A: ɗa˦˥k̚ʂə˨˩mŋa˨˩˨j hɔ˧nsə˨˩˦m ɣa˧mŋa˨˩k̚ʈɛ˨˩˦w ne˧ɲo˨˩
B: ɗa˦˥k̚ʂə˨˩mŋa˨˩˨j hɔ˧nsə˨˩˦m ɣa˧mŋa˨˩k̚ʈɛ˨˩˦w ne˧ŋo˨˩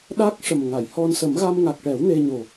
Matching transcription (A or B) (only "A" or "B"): A